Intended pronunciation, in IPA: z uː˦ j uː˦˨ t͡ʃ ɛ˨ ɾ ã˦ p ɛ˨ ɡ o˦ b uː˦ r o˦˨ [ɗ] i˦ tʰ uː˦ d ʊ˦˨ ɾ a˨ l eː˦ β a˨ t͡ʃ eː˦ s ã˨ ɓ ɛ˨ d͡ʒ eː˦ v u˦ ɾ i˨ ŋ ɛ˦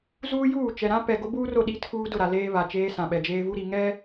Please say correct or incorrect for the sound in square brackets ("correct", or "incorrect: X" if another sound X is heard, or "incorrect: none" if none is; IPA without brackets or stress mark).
correct